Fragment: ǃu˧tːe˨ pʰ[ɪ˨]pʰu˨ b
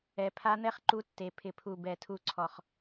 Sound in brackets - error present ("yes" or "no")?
no